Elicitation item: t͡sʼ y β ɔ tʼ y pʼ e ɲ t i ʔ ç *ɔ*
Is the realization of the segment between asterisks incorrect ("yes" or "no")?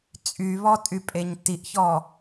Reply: no